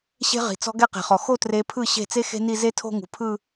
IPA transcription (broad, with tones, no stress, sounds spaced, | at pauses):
ɕ e̤˥ ʁ i̤˨ t͡s ɔ̤˥ ɡ ɛ˥ q e̤˨ χ ɔ˨ x o˥˧ t r e˨˦ pʰ ɯ˥˩ ɕ e̤˥˩ t͡s e˥ x e̤˥ n i˥˧ z e˥ tʰ o̤˥˧ ŋ ṳ˨ pʰ ɯ˥˧